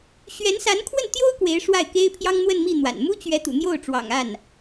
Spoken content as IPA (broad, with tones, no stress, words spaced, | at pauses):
ɕɥɛ˧˥nsa˧˥nkʰwə˥˩nt̪jo˥ʊ̯ kwe˧˥ɪ̯ʂwa˥˩ɪ̯ke˥ɪ̯ pʰjɑ˥ŋn̪wə˥˧nmi˥˩n̪wa̰˨˩n mu˥t͡ɕɥɛ˧˥ t̪ṵ˨˩n̪jo˥˩ʊ̯ʈ͡ʂwɑ̰˨˩ŋ a˥˩n